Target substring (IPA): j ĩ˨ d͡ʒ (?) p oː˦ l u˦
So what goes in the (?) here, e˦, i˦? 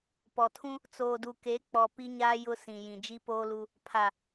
i˦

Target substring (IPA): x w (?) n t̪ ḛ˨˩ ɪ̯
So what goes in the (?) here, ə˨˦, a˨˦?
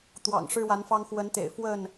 ə˨˦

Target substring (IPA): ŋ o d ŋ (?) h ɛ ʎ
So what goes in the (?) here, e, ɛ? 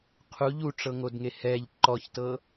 e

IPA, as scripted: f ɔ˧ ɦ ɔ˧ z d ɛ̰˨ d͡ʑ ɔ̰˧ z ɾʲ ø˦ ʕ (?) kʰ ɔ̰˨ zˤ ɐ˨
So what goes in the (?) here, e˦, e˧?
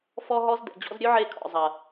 e˧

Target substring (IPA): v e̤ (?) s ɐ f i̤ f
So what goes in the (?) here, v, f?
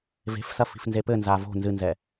f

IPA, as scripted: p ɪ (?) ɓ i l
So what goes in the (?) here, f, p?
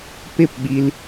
p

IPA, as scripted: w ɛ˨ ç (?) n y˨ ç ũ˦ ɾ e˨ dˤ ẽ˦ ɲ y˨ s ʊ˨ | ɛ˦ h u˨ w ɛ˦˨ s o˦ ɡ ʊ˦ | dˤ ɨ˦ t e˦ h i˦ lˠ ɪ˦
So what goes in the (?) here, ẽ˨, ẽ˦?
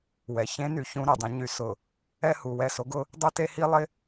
ẽ˦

